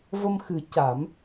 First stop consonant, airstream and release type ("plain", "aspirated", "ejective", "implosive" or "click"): plain